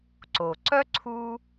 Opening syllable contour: low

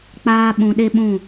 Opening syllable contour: high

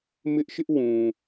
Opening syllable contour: high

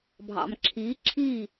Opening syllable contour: low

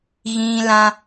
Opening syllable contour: high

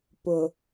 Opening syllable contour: low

